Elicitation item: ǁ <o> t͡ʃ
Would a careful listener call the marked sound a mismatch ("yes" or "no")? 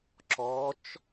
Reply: yes